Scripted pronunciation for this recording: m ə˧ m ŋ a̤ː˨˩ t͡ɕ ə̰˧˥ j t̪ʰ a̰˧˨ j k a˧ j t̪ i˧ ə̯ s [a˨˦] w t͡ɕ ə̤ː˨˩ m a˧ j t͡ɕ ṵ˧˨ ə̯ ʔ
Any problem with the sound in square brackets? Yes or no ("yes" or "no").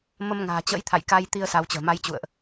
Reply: no